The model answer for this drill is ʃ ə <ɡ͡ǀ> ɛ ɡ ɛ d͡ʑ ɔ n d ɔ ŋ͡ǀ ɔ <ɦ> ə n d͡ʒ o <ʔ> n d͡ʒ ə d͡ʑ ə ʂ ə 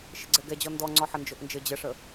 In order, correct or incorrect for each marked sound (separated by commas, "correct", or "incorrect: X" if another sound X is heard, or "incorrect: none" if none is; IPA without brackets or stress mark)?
correct, incorrect: ħ, correct